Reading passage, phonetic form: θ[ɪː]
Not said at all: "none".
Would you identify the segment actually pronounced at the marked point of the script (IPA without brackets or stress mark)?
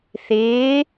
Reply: ɪː